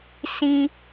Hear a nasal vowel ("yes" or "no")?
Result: yes